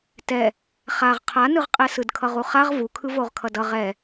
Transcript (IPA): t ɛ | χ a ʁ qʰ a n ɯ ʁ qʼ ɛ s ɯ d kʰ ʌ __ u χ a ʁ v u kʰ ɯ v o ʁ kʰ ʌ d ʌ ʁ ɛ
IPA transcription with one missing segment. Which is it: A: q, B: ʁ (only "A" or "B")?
B